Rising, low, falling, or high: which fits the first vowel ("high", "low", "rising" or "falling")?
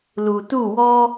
low